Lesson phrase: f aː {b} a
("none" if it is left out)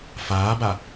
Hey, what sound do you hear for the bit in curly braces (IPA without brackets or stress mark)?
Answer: b